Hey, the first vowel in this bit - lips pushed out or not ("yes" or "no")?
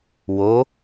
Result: yes